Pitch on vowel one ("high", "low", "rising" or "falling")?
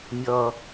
low